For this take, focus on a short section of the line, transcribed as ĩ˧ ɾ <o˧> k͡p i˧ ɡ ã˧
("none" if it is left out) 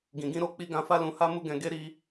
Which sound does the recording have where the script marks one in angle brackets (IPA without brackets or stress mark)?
o˧